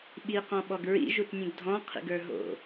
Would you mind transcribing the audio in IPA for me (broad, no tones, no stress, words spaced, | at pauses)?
ɓiqɔ̃ɓɔɡ ɹḭʒutnʲũɡ dʱɔ̃qʰḭɡə˞ ɦo̰